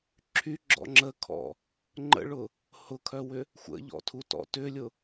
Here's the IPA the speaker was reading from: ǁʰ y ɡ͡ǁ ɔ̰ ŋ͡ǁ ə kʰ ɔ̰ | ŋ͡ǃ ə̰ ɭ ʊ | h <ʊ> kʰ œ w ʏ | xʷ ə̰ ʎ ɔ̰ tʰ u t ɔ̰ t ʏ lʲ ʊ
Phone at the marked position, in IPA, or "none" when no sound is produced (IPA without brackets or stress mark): ʊ